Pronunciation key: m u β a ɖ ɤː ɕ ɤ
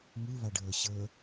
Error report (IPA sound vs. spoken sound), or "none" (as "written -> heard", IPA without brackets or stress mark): none